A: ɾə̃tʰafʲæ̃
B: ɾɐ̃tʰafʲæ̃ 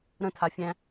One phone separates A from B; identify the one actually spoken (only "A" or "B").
A